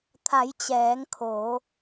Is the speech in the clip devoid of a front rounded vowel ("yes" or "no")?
yes